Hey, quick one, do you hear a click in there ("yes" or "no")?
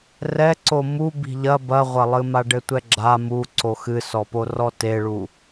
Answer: yes